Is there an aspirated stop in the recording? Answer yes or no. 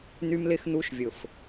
no